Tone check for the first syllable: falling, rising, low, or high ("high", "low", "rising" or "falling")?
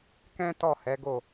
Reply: high